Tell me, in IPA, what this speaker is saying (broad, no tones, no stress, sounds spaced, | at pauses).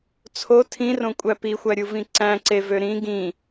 t͡sʰ o tʰ ĩ r õ kʷʼ æ p i xʷ æ ɾʲ u v ĩ ǀ æ̃ ǀ e v ø ɾ ĩ ɡ ĩ